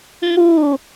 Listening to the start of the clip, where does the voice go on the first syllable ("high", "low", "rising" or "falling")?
falling